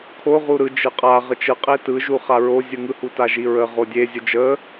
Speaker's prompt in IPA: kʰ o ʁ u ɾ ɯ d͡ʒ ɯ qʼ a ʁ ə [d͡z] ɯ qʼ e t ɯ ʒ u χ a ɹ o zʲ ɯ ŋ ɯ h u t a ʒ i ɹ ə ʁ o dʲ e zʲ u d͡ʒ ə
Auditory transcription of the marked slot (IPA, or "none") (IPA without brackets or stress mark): t͡ʃ